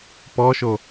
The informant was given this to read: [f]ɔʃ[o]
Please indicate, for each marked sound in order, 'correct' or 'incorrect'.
incorrect: p, correct

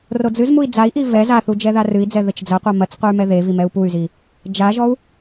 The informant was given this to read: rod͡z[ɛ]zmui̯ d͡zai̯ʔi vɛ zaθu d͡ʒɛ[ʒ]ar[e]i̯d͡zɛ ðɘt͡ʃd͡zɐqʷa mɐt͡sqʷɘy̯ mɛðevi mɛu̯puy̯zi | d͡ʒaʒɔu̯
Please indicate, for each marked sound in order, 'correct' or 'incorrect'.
incorrect: ɨ, incorrect: ð, incorrect: ɨ

